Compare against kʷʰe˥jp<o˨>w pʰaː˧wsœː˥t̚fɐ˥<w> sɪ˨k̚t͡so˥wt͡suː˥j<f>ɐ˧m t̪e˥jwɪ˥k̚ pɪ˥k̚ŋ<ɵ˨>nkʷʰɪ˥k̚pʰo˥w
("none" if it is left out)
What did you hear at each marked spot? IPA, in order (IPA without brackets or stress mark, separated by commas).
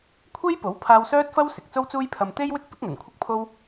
o˨˥, w, pʰ, ɵ˨˩